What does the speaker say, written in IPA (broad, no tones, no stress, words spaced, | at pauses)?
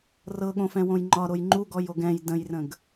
rɤɠõfɛ̃wõj ŋ͡ǃɒɾoj ŋ͡ǃuɡɔjoɡ ɛ̃j də̃jrə̃ɡ